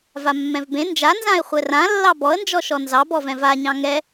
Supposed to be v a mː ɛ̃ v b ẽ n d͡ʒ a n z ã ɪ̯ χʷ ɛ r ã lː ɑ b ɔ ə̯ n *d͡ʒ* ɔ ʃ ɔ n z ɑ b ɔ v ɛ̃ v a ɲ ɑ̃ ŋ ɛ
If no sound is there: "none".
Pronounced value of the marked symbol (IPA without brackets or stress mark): d͡ʒ